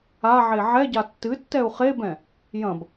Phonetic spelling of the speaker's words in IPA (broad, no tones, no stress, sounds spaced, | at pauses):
a ʕ e ʕ ɛ ɟ a tː ɨ tː ɛ u̯ χ e b ɛ̃ | j ɐ̃ b